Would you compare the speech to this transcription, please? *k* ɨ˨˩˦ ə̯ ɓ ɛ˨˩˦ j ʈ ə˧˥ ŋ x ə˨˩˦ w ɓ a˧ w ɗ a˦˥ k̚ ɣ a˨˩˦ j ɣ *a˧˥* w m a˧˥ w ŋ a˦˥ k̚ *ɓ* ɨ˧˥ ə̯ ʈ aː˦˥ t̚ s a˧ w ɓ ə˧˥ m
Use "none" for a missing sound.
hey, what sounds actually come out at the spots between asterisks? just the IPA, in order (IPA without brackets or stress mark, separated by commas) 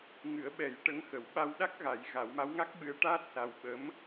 ŋ, a˨˩˦, ɓ